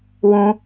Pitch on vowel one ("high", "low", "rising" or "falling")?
high